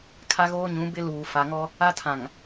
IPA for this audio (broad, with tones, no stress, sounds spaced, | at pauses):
kʰ a˦ ɣ oː˦ ɲ ũ˨˦ b ɪ˦ l uː˨ f a˨ ŋ ɔ˦ | a˦ tʰ ã˨ ŋ